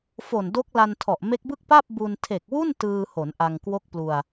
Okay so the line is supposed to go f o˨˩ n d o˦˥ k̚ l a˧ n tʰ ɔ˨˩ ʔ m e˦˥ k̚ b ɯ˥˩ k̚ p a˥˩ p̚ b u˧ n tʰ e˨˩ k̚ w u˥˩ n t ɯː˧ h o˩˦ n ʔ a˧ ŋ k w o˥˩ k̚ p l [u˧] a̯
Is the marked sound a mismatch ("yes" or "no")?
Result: no